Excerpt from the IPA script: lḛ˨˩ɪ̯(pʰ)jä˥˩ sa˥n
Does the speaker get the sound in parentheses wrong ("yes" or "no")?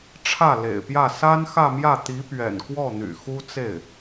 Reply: yes